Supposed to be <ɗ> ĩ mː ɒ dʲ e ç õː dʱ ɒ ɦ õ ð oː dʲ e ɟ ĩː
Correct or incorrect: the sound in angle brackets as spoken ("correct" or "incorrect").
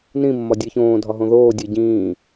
incorrect